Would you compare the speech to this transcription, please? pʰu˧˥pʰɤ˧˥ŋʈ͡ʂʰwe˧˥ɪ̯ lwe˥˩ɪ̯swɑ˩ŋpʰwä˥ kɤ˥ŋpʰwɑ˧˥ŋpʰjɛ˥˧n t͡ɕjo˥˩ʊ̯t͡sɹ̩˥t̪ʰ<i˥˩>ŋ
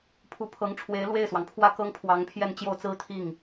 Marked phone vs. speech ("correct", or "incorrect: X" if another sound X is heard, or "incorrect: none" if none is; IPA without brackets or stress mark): correct